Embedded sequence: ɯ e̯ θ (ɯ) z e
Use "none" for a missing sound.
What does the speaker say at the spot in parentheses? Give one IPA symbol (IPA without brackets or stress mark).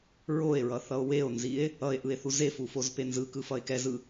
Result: u